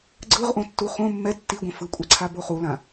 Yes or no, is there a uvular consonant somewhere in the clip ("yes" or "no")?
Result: yes